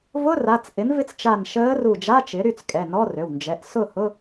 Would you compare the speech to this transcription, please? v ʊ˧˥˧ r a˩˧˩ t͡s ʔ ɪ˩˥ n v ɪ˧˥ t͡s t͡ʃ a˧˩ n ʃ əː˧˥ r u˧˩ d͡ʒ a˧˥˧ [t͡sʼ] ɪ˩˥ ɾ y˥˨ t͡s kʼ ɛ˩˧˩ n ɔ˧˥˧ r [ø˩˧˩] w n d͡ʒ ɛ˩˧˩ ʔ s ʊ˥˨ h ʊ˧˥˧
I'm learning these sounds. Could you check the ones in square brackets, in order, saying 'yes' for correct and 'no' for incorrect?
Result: no, yes

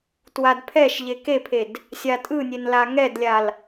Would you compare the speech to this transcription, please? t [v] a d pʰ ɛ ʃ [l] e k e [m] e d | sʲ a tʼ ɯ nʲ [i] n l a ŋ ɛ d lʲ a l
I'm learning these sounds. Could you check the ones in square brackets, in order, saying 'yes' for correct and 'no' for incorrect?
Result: no, no, no, no

